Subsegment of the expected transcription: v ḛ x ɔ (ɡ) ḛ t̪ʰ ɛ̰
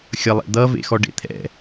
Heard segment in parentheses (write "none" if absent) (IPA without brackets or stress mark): ɖ